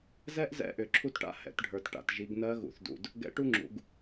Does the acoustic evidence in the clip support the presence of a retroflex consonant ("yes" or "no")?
yes